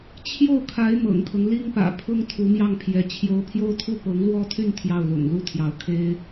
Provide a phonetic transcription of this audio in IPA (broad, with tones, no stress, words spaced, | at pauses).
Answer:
t͡ɕʰjo˥˩ʊ̯kʰa˧˥ɪ̯ mɤ̰˨˩ŋkʰɤ˦ŋ li˥ŋpä̰˨˩ pʰʊ˥ŋ t̪ʰu˧˥mjɑ˥˩ŋpʰjɛ˧˥ t͡ɕʰjo˧˥ʊ̯pʰjo˥ʊ̯t̪ʰu˥˩ pɤ˧˥ŋlwɔ˥t̪ʰy˥˧n t̪ʰjɑ˥˩ʊ̯lʊ̰˨˩ŋ lu˥˩t̪ʰjɑ˧˥ʊ̯ kʰe˥ɪ̯